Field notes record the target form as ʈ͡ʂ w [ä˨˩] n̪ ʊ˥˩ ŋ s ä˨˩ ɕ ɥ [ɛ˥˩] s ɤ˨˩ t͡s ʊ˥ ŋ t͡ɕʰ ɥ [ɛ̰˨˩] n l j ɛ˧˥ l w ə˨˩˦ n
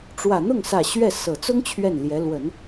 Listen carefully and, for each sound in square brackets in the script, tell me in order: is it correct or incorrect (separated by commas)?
correct, correct, incorrect